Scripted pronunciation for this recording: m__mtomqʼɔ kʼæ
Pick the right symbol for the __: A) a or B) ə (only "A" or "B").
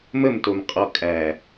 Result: B